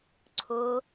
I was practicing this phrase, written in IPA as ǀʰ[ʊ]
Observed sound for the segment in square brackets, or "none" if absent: ʊ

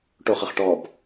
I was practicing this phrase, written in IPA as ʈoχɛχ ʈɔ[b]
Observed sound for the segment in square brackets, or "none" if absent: b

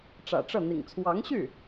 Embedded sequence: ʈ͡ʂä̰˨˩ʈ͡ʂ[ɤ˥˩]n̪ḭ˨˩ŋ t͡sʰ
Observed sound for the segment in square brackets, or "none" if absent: ɤ˥˩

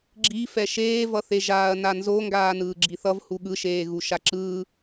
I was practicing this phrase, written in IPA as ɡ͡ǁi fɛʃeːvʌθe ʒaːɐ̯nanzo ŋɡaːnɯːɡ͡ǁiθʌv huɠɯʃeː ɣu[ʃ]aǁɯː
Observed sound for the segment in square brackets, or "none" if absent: ʃ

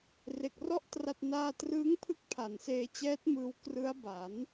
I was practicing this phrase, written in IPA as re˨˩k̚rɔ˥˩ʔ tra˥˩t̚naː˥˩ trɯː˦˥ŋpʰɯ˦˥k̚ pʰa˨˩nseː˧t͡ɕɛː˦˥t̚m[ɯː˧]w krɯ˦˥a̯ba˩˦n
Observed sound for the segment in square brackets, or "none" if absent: ɯː˧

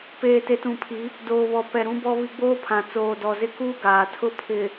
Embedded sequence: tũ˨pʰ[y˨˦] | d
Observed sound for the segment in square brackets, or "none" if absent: i˨˦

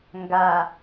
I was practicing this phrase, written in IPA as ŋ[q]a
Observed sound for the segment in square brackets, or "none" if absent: ɡ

